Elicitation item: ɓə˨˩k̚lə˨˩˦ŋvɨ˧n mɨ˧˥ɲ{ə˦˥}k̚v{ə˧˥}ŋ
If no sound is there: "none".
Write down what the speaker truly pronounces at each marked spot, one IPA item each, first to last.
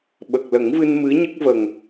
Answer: ə˦˥, ə˨˩

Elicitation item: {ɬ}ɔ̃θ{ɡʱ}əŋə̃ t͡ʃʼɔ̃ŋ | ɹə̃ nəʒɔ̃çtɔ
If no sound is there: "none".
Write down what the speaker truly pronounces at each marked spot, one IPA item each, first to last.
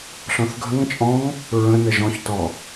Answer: ɬ, ɡʱ

